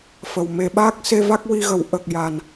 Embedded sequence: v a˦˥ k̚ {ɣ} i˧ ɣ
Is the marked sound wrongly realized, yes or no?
yes